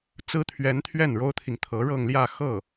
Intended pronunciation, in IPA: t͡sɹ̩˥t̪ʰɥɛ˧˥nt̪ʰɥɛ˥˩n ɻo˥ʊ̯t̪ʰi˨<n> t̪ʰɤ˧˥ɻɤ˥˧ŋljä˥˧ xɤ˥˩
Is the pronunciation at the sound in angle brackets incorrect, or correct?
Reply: incorrect